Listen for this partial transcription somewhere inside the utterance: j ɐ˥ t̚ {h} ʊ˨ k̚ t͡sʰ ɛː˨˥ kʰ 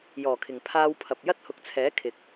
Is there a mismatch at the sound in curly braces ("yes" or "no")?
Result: no